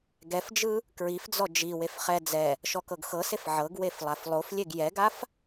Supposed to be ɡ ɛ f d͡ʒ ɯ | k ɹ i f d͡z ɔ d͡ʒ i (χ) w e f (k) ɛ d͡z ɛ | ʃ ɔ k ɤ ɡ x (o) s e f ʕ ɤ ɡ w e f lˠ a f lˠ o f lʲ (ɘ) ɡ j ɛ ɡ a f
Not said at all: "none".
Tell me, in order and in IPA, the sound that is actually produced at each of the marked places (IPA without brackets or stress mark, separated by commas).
none, χ, ɤ, e